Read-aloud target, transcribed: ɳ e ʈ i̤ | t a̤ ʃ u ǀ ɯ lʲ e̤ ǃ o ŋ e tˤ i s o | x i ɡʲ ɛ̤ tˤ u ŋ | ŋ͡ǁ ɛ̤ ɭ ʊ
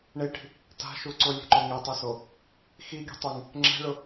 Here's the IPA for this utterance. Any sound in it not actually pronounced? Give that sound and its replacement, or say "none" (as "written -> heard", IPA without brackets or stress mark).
ɯ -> ʊ